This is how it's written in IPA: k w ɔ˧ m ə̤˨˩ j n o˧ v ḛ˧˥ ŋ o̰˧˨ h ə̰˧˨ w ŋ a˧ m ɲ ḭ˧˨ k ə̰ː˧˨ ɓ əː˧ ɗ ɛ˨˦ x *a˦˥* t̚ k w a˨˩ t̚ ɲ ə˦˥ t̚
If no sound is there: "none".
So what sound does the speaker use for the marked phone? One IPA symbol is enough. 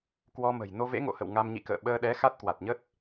a˦˥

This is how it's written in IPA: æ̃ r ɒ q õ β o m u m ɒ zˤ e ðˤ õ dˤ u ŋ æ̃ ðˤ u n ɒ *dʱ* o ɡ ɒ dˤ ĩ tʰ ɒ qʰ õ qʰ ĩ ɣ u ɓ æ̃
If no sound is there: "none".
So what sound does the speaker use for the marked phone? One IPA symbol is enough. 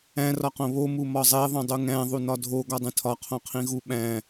dʱ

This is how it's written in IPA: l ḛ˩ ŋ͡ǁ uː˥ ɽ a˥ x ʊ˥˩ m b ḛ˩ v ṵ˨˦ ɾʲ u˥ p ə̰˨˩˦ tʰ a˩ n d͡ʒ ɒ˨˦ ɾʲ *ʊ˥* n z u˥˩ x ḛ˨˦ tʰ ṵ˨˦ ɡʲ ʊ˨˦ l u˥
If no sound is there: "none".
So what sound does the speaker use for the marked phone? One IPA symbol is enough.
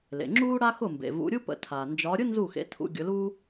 ʊ˥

